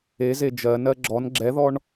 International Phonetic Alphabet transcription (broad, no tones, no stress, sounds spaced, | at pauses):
e z e d͡ʒ ɜ n ɜ ɡ͡ǁ ɔ n ɡ͡ǁ ɛ ð ɔ ɳ